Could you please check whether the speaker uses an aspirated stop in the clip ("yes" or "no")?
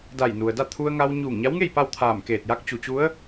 yes